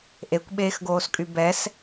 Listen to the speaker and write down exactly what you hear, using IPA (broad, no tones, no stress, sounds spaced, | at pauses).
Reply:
ʔ e kʷ ɓ eː x ɡ oː s kʼ y b ɛ s